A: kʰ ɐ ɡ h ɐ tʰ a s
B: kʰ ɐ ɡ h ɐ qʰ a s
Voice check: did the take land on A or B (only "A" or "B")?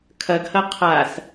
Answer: B